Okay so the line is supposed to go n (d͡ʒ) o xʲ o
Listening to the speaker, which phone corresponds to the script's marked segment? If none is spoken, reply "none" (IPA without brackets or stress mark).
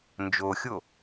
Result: d͡ʒ